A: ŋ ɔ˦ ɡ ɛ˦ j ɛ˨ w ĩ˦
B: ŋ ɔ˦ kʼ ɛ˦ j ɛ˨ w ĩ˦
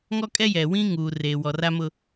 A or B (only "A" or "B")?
B